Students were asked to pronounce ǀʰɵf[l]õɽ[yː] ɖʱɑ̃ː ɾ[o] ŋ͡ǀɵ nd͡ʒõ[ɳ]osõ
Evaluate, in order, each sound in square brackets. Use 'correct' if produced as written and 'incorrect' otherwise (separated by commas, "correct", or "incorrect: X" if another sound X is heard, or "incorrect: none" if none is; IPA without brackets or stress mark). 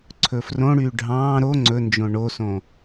incorrect: r, correct, correct, correct